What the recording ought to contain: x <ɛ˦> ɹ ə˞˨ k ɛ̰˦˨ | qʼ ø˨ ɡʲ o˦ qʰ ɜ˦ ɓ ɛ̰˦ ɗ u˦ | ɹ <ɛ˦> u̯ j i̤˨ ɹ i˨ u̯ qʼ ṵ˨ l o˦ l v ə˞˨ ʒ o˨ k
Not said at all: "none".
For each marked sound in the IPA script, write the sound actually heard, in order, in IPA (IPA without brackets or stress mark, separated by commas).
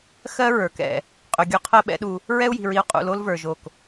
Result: ɜ˦, ɛ˦